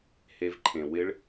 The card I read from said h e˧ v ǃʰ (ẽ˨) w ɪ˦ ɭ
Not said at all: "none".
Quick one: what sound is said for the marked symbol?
ẽ˨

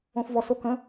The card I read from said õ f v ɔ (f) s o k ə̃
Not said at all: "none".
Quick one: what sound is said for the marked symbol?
none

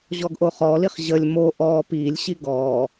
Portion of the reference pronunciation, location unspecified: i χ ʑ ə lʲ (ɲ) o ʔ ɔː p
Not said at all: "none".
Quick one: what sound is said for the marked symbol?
m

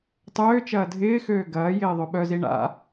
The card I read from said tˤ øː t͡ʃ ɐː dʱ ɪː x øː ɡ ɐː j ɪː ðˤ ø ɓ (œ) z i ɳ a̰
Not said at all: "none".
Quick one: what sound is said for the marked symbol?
œ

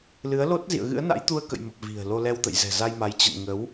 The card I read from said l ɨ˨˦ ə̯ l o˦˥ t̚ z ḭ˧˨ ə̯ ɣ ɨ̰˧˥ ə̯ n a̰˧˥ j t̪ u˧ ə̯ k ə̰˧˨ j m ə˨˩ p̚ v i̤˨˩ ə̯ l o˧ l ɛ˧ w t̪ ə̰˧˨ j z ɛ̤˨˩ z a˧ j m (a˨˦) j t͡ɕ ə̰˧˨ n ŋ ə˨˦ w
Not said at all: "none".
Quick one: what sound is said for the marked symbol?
a˨˦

